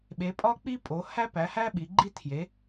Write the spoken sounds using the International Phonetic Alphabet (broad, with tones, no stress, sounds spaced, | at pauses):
ɓ e˩˧ pʼ ɒ˦ k͡p i˦ pʼ o˩˧ h æ˦ p æ˩˧ h æ˦ ɓ i˩˧ ɡ͡ǃ i˦ tʰ j e˩˧